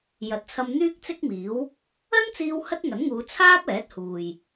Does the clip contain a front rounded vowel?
yes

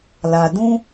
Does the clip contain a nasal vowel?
yes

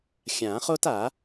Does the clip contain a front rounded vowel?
no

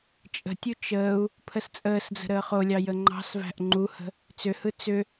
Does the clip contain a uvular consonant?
yes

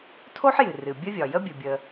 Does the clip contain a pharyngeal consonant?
yes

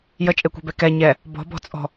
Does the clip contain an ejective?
yes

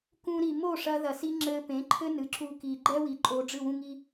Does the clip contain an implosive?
no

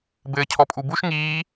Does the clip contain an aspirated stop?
yes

